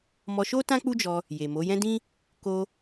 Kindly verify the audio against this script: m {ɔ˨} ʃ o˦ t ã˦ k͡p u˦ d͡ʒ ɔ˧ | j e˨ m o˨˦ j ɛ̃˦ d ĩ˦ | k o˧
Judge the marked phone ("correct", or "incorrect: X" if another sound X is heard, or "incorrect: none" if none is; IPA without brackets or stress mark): incorrect: ɔ˧